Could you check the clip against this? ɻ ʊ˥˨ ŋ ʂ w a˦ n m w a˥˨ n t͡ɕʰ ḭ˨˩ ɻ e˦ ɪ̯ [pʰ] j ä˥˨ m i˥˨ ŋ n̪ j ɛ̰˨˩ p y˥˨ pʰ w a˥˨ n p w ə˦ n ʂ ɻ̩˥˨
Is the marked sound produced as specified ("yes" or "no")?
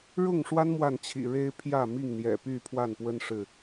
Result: yes